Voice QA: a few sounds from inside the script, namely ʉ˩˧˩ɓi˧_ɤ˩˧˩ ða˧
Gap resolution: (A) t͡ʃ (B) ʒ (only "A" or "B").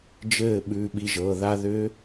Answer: B